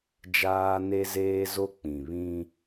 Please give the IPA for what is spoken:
d͡ʒ aː˦ n e˦ z eː˦ z o˦ k͡p ĩ˨ β ĩ˦

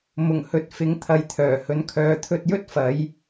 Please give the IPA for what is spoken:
m ʊ˨˩ ŋ h ɵ˨ t̚ f ɪ˨˧ ŋ t̪ʰ ɐ˨ j t̪ʰ œː˨˩ h ɵ˨˧ n kʰ œː˨˧ t̪ʰ ɵ˧ t̚ j ɵ˥ t̚ f ɐ˨˥ j

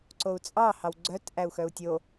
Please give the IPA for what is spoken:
ǀ o u̯ t͡sʼ ɑ h ɑ w ɡ͡ǀ œ t ʔ æ u̯ x œ u̯ tʲ o

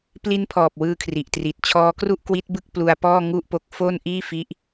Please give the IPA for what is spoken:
p l i˦˥ n pʰ ɔː˨˩ p̚ w ɯː˧ kʰ r i˨˩ ʔ t r i˨˩ t̚ t͡ɕʰ ɔː˦˥ k r u˥˩ ʔ k w i˦˥ t̚ b ɯ˥˩ k̚ p l u˧ a̯ p ɔː˥˩ ŋ u˥˩ ʔ p o˦˥ k̚ f o˥˩ n ʔ iː˥˩ f i˦˥ ʔ

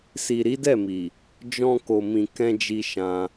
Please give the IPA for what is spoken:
s i˨ ɾ i˨˦ d ɛ˦˨ m i˨ | d͡ʒ ɔ̃˧ k o˨ m ĩ˨ k ɛ̃˧ d͡ʒ i˧ ʃ ã˧

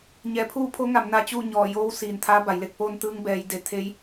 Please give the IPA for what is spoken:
ɲ ɛː˩˧ pʰ uː˥˨ pʰ o˧˥ ŋ a˩˧ m n a˧ t͡ɕ uː˥˨ ɲ ɔː˧˩ j oː˧˥ w s iː˩ n t̪ʰ aː˧˥ b a˩˧ j l e˥˨ k̚ p oː˧ n t̪ ɯː˧ ŋ b ɛː˩˧ j d e˩˧ t̪ʰ e˧˥ j

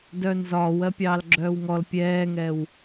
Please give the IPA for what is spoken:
d œː n z ɒː w ɜ pʲ ɑː l ɡ͡ǁ œː w ŋ ɔ l pʲ ɛː ŋ ɛː w

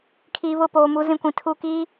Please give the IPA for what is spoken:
kʰ iː˨ β ʊ˦˨ p oː˨ m u˦ z ĩ˦ kʷ ĩ˨ tʰ u˦˨ k iː˦

